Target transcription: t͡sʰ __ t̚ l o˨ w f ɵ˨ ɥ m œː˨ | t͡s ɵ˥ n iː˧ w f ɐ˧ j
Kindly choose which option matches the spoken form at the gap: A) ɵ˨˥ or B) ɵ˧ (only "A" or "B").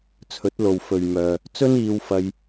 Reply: A